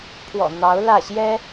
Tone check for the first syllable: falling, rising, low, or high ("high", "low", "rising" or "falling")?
low